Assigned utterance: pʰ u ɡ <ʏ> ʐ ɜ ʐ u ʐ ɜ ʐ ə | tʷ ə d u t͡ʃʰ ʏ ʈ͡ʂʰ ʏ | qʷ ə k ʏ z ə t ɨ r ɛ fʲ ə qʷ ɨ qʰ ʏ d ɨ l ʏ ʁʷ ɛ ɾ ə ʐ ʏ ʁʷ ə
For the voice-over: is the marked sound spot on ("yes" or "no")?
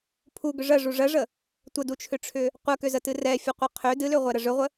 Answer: yes